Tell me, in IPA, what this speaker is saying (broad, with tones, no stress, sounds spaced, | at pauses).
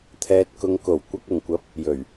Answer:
t̪ʰ ɛː˨ t̚ k ʊ˨ ŋ k o˨˩ w kʷ ɐ˨ k̚ ʊ˨˩ ŋ kʷ ɐ˨˥ p̚ | j ɵ˨˩ ɥ